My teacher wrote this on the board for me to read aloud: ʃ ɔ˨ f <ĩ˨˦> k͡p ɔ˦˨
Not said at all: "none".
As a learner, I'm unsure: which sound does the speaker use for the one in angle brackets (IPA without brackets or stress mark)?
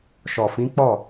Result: ĩ˨˦